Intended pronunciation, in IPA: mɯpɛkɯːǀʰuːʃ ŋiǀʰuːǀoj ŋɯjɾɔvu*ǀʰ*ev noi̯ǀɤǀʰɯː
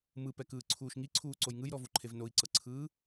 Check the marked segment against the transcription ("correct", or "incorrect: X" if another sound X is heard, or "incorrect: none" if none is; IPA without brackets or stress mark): incorrect: ǃʰ